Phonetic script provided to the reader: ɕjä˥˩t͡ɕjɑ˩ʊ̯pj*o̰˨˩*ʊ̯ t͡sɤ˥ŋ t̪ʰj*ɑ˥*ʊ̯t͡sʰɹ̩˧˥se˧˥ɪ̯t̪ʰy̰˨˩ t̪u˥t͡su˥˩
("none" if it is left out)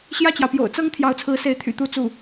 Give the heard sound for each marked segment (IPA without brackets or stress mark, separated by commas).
o̰˨˩, ɑ˧˥